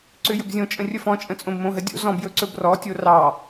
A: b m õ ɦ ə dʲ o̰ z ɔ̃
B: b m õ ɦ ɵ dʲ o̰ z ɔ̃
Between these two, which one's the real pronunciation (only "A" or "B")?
A